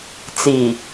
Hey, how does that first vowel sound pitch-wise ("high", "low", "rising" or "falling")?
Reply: low